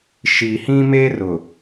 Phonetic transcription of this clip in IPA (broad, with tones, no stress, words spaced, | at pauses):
ʃi˨hĩ˦me˦rʊ˨